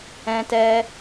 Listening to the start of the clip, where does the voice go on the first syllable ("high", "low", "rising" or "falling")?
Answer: high